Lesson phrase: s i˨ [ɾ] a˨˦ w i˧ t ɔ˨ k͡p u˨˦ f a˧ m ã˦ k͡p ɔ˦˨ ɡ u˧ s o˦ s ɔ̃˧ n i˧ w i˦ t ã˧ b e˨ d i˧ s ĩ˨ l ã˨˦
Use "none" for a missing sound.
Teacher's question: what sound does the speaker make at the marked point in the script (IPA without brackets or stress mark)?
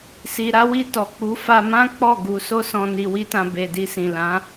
ɾ